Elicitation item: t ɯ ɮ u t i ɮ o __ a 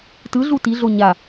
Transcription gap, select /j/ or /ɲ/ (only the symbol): ɲ